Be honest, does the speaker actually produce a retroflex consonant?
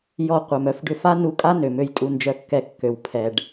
yes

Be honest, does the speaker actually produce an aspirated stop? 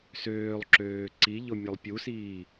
no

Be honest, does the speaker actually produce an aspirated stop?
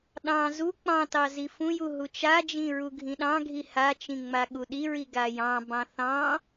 no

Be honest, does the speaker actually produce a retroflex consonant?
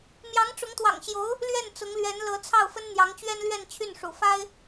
yes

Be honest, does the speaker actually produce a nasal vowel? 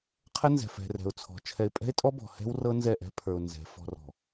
no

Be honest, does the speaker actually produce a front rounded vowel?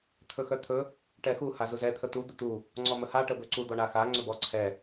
yes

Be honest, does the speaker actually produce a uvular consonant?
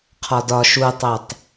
yes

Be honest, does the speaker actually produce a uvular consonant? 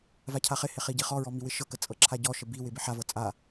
yes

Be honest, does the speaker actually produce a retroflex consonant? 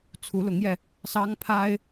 no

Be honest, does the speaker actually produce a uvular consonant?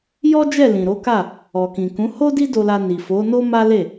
no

